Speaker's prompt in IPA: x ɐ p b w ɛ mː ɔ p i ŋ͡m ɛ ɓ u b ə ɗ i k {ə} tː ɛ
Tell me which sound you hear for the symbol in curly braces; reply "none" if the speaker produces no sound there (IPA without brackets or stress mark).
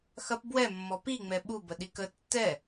ə